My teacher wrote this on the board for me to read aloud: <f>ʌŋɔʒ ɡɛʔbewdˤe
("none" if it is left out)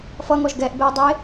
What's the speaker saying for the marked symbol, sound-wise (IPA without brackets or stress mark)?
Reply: f